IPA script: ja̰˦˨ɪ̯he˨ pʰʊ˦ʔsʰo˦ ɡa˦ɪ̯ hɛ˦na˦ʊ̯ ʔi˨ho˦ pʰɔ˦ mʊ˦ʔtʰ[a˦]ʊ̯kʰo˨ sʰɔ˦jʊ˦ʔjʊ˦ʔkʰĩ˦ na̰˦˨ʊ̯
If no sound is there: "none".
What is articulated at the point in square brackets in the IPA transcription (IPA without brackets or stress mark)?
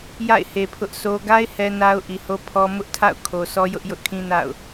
a̰˦˨